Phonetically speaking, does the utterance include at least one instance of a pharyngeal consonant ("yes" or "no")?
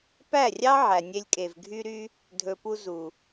yes